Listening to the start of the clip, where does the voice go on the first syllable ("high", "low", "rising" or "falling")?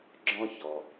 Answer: high